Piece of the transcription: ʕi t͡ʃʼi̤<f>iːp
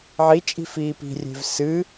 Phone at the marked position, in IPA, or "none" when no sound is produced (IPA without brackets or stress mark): f